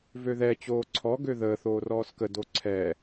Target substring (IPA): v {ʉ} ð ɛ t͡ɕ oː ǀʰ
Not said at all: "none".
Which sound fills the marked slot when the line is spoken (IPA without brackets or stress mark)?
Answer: ø